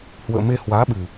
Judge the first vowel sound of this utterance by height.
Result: mid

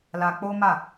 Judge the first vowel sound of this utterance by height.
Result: low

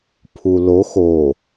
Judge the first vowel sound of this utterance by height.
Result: high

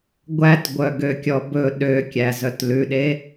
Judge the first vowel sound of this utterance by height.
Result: low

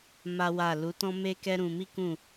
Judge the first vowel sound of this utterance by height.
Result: low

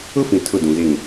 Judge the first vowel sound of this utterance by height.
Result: high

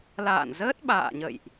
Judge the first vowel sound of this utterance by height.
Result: low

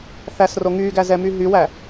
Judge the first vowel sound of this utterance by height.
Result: low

